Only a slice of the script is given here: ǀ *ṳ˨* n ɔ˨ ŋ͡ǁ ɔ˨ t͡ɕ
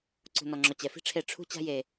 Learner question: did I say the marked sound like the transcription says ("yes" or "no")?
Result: yes